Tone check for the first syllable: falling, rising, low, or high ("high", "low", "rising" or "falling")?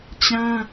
high